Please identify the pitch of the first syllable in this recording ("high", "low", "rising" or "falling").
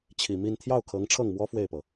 low